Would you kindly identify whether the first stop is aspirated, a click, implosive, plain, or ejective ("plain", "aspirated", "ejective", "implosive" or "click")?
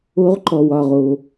click